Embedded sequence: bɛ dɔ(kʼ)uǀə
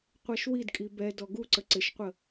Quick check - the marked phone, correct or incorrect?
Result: incorrect